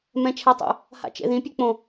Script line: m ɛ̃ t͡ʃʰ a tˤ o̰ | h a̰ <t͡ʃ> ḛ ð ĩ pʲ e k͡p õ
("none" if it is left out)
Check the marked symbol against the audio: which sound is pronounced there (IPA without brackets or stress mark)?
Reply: t͡ʃ